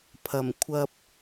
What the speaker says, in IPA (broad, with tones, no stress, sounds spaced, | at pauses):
pʰ ɐ˨˩ m kʷʰ ɐ˧ p̚